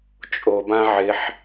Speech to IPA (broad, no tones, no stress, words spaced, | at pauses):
t͡ʃʼobã ʕɪħ